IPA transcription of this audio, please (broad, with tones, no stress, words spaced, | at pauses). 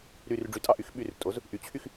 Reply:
ɾy˨˩rɖ͡ʐy˩˥tʼɑ˨˩ʔy˩˥x ɓy˨˩rtʼo˩˥z | ʔy˩˥t͡ɕʰy˥˩x